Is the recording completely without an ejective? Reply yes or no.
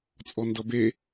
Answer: no